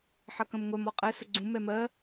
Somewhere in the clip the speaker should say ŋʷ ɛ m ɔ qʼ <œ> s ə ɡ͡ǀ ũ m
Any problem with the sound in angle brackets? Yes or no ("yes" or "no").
yes